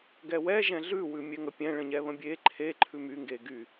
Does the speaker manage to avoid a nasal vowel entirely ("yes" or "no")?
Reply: no